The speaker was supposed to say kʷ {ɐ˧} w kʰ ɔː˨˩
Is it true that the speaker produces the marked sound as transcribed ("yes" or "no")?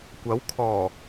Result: no